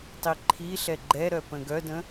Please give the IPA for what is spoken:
tˤiǃʰiɬɛ ɡ͡ǃɛɾœ pə̃ɡœdə̃

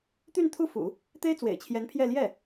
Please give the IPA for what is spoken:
t̪y˥˧nt̪ʰu˥˩fṵ˨˩˦ | t̪e˥ɪ̯t͡swḛ˨˩ɪ̯t͡ɕʰjɛ˧˥npʰjɛ˥˧ ljɛ˥˩

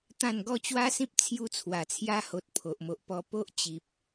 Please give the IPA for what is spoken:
t̪ã˥˧n ɡɔ˥˧t͡ɕwa˦sĩ˦p̚ t͡sʰju˧t͡sʰwa˨˩t͡sʰja˧ho˨t̚ pʰo˨ʔmo˨ʔpɔ˧ po˦ʔ t͡ɕi˨p̚

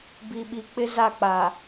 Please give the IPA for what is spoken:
bi˨ɓi˨k͡pɪ˦ za˦˨k͡pa˨

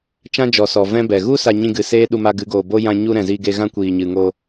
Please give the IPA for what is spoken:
t͡ʃã˦d͡ʒɔ˨sɔ˨ vɛ̃˦bɛ˨ ɣu˦ sa˧ɲĩ˧ɡɨ˨ seː˦ ɗu˧ ma˧ɡɨ˨˦ɡoː˨bo˦ jã˧ɲu˧ ɾɛ̃˨zi˧ɡe˧ ɣã˦ kʷiː˨ɲɨ˨ŋo˧

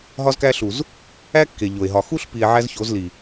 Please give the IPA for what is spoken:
ɦɒ˦zkæ˦ɬu˨z | æ˦ kːe˨ʎo˨e̯ɦɒ˨ xu˦ɬpi˨e̯ ʕæ˦z ço˨˦zli˨

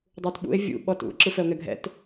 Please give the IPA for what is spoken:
dˤutɓṵe̯ vʲṵ ɓɔtṵ ǁɯfɛo̯ŋɛɡʱɛ̰t

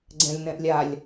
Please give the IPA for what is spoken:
ɡ͡ǀɛ̃lʲnɛ̃ʔlʲalʲ

